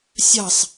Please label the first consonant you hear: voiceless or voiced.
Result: voiceless